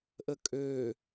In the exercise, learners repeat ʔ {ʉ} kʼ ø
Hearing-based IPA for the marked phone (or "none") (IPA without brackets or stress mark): ə